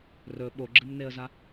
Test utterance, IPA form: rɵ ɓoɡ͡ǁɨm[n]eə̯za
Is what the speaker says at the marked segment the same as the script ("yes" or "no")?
yes